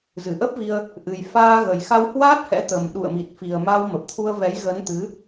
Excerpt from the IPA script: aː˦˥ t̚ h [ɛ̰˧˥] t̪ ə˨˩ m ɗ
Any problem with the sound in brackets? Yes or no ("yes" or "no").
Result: no